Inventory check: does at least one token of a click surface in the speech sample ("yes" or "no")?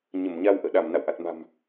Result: no